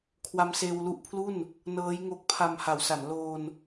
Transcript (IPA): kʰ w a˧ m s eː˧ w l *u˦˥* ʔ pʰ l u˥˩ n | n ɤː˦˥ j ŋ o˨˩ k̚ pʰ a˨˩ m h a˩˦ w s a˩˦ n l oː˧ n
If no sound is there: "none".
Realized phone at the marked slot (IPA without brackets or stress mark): u˦˥